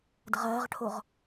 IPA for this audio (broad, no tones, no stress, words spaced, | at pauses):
dəʁɐːʁʈʰoʁ